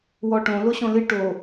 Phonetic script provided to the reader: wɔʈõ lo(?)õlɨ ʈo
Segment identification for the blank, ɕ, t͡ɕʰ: ɕ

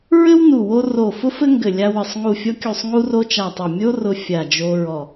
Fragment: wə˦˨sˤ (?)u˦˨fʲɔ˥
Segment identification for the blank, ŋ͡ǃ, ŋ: ŋ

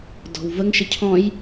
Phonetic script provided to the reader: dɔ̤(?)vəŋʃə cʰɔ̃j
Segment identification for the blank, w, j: w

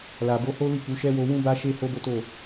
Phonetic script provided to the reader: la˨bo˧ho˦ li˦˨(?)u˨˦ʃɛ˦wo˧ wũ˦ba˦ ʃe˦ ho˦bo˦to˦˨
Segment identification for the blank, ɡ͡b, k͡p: k͡p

